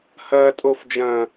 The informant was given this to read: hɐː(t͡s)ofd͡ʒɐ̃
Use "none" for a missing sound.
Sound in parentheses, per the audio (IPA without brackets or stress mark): tʼ